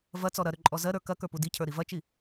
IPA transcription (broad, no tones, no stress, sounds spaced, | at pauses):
v ɐ t͡s ɔ ɾ ɐ ɾ ʏ ǃʼ ɔ z ɜ ɾ ə˞ k ɐ k ə˞ p u d i cʰ ə˞ ɾ i v ɐ t͡ʃ i